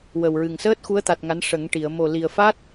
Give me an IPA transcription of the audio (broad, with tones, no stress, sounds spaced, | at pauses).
w ə˨˩ w ɹ ɨ˨˩ ŋ s əː˦˥ t̚ x u˧˥ ə̯ t̪ a˨˩ t̚ ŋ a˧˥ n ʂ ə˨˩˦ ŋ ʈ i˨˩˨ ə̯ m o˨˩ l i˨˩ ə̯ f a˦˥ t̚